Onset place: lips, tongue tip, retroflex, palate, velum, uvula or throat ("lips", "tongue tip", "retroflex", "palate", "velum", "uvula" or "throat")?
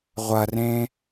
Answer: uvula